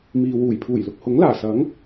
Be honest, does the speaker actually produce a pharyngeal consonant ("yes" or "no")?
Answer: no